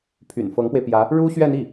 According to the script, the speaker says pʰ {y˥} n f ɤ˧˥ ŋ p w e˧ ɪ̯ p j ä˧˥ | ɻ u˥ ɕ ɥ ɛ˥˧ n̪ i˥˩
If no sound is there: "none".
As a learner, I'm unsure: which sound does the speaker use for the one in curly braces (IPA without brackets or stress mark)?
y̰˨˩